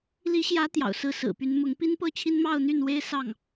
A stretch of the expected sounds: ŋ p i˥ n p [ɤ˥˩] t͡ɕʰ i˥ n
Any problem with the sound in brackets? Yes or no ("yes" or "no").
no